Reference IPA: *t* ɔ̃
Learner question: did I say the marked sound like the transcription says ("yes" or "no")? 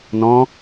no